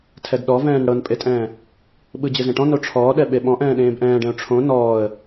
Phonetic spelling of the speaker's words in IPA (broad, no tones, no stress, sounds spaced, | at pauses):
tʰ ɛ d ɗ ɔ v ɛ̃ː n ɽ ɤ n pʼ e tʼ ɛ̃ː | ɓ ɯ d͡ʑ ɯ z ẽ ʈ ɔ̃ n o ʈ͡ʂʰ ɔː ɗ ɛ ɓ e ɓ ɔ̃ ʔ ɛ̃ː ɗ ẽː b ʔ ɛ̃ː ɖ ɛ̃ ʊ̯ ʈ͡ʂʰ õ n ɔː ə̯